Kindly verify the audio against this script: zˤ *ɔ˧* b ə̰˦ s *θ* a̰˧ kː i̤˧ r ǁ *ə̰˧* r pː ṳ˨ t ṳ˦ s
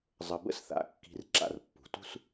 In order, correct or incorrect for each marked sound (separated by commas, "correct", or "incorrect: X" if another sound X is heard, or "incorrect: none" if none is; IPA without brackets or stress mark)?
incorrect: ə˧, correct, incorrect: a̰˧